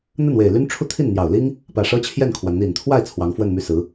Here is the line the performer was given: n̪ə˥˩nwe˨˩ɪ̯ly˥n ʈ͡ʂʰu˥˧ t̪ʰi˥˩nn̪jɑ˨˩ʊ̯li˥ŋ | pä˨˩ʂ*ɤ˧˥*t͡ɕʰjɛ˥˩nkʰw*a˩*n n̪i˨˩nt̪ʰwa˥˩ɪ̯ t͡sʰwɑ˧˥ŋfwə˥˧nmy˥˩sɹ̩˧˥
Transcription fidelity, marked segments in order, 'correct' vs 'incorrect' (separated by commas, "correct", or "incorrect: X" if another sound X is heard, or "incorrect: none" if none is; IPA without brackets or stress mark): incorrect: ɤ˥, correct